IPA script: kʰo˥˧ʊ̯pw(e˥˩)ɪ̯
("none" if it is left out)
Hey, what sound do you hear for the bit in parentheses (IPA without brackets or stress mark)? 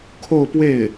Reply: e˥˩